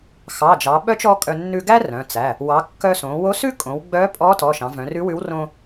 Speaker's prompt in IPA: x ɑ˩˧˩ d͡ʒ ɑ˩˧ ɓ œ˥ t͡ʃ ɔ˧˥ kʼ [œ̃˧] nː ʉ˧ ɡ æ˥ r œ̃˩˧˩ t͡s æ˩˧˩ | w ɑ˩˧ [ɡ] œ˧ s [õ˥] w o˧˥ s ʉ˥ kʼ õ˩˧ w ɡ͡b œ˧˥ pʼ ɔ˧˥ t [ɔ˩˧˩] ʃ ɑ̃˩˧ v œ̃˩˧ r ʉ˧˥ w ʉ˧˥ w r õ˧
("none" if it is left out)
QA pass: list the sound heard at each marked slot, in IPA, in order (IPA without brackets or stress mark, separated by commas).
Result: œ˧, kː, õ˩˧, ɔ˩˧˩